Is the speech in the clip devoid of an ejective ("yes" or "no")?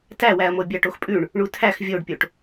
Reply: no